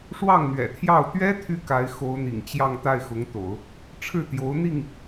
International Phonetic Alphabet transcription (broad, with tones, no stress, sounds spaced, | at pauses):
ʂ w ɑ˥˩ ŋ n̪ ɥ ɛ̰˨˩ t̪ʰ j ɑ˥˩ ʊ̯ t̪ ɥ ɛ˥ t̪ʰ y˥ k a˧˥ ɪ̯ x o˧˥ ʊ̯ n̪ ḭ˨˩ ŋ t͡ɕ j ɑ˥˧ ŋ t̪ a˥˩ ɪ̯ x ʊ˧˥ ŋ t̪ o̰˨˩˦ ʊ̯ | ʈ͡ʂʰ ɻ̩˥˩ t̪ j o˧˥ ʊ̯ n̪ i˥˩ ŋ